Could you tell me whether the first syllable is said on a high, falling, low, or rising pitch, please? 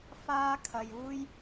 high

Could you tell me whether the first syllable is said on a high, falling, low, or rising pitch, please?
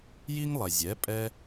high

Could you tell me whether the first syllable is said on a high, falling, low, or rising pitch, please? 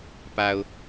low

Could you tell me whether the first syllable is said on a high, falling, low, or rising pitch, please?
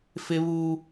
high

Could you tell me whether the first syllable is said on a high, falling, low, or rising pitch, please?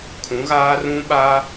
rising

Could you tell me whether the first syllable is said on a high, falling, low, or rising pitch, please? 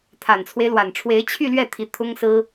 low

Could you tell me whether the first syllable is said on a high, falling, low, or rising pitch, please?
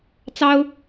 high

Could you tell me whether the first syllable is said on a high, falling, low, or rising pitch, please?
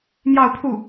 falling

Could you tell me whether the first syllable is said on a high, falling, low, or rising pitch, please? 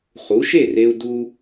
rising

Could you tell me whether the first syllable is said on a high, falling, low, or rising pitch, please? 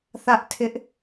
high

